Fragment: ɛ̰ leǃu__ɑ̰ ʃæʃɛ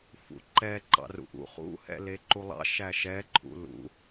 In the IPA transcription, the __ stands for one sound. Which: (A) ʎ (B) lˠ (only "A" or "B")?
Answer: B